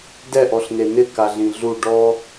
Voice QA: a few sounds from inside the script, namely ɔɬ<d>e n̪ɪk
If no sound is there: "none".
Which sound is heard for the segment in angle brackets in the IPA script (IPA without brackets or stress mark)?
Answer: n̪